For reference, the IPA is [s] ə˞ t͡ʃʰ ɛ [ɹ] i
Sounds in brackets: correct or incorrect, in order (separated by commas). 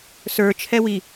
correct, incorrect